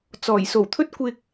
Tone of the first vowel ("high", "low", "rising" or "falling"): low